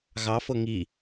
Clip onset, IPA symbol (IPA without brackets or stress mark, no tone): ɣ